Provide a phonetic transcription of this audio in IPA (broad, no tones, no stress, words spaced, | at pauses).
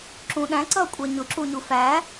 ǁũɗæ̃ǀʌ kʷʼɛɲʊǁuɲu fæ